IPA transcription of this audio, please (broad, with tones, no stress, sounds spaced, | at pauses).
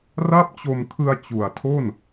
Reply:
r a˥˩ p̚ t͡ɕ o˧ m kʰ ɯ˧ a̯ t͡ɕ u˨˩ a̯ tʰ o˥˩ n